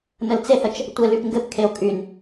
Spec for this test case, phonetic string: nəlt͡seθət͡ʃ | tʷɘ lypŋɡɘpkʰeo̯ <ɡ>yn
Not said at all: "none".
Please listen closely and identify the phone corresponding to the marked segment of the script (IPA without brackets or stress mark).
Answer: kʼ